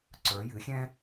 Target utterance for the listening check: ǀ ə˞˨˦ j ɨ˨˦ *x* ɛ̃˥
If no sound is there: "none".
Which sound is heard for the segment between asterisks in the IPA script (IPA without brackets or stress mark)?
xʲ